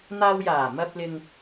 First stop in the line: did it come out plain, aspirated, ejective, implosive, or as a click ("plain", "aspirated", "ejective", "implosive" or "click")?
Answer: plain